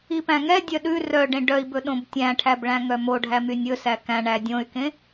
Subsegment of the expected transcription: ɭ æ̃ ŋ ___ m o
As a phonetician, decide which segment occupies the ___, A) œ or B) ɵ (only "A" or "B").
A